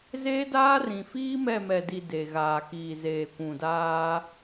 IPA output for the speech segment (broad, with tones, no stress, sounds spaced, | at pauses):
z eː˦ d aː˦ r ĩ˨ f iː˦ m ɛ˦˨ m ɛ˨ d i˨ d e˨ ɣ aː˨ k iː˨ z eː˨ kʷ ũ˨ d aː˦